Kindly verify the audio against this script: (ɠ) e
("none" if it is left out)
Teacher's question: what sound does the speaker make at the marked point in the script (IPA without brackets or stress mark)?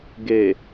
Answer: ɡ